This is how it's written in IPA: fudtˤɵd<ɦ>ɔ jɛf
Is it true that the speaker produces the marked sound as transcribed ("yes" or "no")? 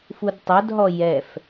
yes